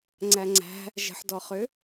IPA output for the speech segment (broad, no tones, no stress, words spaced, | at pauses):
ŋ͡ǀæŋ͡ǀæ̤ | ʒə̤ħdɔχʏ